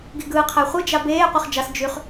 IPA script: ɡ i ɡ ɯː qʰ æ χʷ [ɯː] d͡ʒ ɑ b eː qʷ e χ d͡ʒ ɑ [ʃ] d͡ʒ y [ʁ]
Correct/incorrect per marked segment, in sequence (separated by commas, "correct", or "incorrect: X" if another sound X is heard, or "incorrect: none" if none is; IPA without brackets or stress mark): incorrect: ɯ, incorrect: s, incorrect: χ